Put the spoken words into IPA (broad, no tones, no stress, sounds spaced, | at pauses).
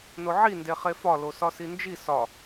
n o ʕ i n d e χ e f ɒ l o s ɒ s i n d͡ʒ i s ɒ